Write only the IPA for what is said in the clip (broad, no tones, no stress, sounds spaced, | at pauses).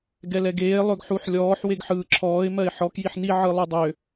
ɡ ɛ l ɛ ɡ eː lˠ ø ɡ ħ u ħ lʲ ɔː ħ w e ɡ ħ ɯː ǁʰ ɔː ɪ̯ m ɜ ɪ̯ ħ ɔ k j i ħ n i ʕ ɯ lˠ ʉ dˤ ø